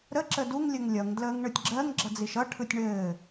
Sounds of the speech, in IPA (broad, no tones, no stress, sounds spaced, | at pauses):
ɾ ə ǁ ə d u ŋ lʲ ə ŋ lʲ ʌ ŋ d l əː ŋ ɳ ɯ tʲ ɡ͡ǁ ɜ ŋ ɡ͡ǁ ʌ d͡z i ʃ ʌ ʈʰ ɯ tʲ ɳ ɘː